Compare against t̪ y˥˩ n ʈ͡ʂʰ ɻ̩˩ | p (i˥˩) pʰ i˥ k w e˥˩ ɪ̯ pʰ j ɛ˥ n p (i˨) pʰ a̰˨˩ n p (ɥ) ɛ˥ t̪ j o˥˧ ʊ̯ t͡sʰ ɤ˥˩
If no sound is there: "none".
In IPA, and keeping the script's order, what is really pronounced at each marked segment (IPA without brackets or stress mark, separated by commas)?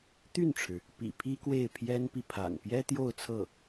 ḭ˨˩, i˨, j